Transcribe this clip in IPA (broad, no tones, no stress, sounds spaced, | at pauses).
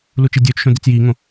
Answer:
l u t͡ʃ i dʲ ɵː t͡ʃ ʃ õ d i t͡s j iː ŋ õ